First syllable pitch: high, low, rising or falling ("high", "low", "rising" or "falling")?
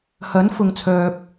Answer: rising